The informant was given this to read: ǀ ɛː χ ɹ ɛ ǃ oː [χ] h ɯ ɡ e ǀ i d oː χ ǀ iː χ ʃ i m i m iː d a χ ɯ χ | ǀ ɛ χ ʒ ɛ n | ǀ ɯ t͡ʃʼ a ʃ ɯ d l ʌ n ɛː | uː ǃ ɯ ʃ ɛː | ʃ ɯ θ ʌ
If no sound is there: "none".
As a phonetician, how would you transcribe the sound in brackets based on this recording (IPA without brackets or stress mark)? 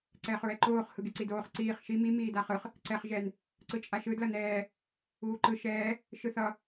χ